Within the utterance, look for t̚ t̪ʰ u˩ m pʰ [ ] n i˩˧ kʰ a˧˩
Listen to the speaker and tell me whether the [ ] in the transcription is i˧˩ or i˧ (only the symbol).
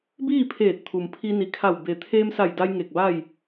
i˧